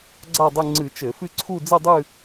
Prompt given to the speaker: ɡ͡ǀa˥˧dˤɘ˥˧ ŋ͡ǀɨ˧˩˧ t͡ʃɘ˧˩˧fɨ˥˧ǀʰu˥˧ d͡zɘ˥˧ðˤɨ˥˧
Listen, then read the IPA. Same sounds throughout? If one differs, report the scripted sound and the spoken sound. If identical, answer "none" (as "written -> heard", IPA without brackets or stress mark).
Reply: ðˤ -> dˤ